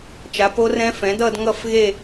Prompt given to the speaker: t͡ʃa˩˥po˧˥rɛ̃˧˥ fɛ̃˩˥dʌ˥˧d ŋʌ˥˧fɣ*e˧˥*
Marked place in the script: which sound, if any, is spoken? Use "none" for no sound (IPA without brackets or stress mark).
e˥˧